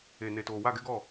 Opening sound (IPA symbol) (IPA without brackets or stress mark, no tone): e